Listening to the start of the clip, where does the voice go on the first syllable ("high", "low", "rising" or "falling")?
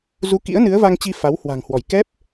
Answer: rising